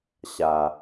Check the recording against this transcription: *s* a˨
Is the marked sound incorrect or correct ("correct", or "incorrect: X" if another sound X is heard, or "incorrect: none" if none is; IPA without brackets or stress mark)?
incorrect: ɕ